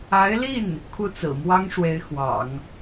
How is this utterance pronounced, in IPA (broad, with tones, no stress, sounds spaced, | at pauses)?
a˧˥ ɪ̯ l i˥˩ n | kʰ u˥˩ t͡s ɹ̩˨˩ m w ɑ˥ ŋ ʂ w e˧˥ ɪ̯ x w ɑ̰˨˩˦ ŋ